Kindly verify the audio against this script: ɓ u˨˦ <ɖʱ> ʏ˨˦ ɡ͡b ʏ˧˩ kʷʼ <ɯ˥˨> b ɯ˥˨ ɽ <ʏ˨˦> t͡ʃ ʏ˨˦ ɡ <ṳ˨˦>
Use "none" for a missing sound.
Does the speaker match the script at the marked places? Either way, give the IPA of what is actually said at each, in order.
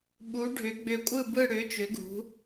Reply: ɖʱ, ɯ˥˨, ʏ˨˦, ṳ˨˦

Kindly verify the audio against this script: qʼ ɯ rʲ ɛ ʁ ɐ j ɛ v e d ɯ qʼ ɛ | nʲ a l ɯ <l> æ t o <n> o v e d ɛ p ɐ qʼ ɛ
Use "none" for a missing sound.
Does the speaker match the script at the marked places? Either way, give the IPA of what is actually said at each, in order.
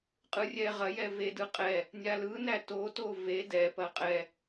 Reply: n, t

